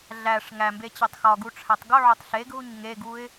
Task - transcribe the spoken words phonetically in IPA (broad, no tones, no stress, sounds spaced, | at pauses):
ɮ æ ʂ ŋ æ m b e t͡ɕ e tˤ x ɒ ɡ u ʈ͡ʂʰ æ tˤ ɡ o ʕ o tˤ ɬ e ɡ ɦ u ɲ ŋ e ɡ u ɪ̯